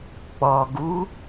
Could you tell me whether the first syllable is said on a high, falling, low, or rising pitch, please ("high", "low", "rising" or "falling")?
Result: low